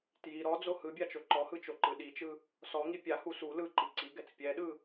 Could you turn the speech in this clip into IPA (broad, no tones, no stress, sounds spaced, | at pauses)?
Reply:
t j i ɾ ɔ d͡z o h ɯ bʲ a t͡ʃ o ǃ ɔ h ɯ t͡ʃ o ǃ ɯ ɗ i t͡ʃ ɯ | s ɔ ŋ i pʲ a h u s u l ɯ ǃ i ǀ i ɡ ɛ t͡s pʲ ɛ ɗ ɯ